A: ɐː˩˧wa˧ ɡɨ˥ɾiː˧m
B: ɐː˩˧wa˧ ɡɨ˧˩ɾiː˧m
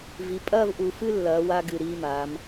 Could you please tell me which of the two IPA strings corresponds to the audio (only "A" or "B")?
B